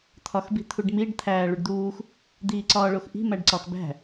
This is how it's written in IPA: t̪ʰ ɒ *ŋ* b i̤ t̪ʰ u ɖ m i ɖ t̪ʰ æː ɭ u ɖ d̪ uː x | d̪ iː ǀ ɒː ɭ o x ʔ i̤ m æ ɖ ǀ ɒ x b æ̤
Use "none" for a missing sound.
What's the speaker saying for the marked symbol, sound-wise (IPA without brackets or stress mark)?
x